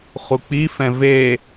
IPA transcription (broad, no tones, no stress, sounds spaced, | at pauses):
χ u k͡p i f ɛ̃ v e